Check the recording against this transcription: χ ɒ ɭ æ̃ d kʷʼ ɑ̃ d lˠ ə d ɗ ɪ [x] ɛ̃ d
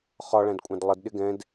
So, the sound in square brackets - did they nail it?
no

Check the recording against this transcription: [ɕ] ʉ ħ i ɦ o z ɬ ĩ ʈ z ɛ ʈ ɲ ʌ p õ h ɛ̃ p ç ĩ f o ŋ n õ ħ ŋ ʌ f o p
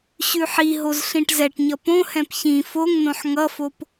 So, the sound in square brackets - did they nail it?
yes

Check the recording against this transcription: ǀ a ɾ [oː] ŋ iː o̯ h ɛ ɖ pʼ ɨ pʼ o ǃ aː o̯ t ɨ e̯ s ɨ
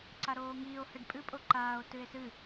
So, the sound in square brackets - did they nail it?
yes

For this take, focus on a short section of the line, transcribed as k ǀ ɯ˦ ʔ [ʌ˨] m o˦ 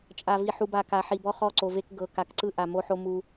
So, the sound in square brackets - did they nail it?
no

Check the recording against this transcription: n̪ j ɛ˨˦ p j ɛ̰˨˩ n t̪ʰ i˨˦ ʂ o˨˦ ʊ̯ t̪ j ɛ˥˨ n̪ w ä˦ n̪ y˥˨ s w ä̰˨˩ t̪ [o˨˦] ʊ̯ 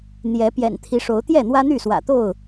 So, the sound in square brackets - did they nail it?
no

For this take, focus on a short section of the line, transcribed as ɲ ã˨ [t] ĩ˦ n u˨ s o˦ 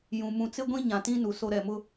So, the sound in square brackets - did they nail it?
yes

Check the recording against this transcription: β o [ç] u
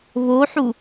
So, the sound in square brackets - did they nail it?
no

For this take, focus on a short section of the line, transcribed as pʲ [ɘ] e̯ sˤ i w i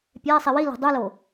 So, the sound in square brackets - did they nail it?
no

